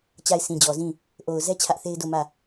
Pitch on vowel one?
falling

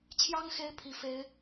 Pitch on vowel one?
high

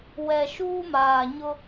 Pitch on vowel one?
low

